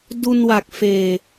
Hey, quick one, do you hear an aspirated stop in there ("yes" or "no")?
no